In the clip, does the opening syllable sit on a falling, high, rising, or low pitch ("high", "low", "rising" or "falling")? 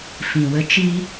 low